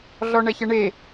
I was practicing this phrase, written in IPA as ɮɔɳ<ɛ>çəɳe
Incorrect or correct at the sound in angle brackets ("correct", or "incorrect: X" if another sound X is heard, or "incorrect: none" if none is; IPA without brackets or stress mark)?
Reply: correct